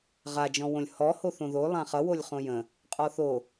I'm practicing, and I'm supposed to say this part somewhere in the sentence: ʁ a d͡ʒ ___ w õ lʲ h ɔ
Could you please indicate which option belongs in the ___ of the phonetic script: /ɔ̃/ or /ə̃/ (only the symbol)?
ɔ̃